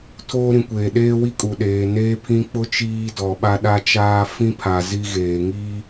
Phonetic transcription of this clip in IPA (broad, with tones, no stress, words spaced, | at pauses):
tʰoː˦ɾĩ˨kʷeː˨ ɗeː˦wi˦ kʼu˨ɗeː˨ neː˦pʰĩ˦k͡pʊ˦ t͡ʃiː˦ dɔ˨ɓa˦ɗa˦t͡ʃaː˦ fĩ˦pʰa˨ zi˦ɣeː˨ ŋiː˦